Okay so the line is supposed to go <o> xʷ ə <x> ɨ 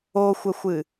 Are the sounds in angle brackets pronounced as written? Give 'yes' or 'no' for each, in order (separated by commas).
yes, no